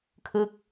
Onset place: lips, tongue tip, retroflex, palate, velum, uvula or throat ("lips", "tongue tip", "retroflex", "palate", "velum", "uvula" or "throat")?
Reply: velum